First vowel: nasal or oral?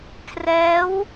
oral